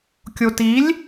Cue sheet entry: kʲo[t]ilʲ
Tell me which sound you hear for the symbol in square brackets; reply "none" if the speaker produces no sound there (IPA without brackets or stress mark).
t